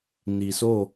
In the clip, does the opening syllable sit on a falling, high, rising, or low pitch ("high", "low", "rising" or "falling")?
low